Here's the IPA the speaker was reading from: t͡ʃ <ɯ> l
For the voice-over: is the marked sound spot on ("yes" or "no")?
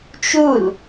no